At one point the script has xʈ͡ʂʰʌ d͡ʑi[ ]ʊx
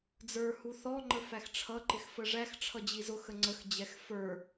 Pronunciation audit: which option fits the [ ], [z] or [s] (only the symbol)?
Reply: z